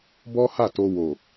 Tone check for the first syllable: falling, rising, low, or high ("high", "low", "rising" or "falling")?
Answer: high